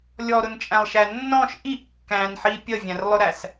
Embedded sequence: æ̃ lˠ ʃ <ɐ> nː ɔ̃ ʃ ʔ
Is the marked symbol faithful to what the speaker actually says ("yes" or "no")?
no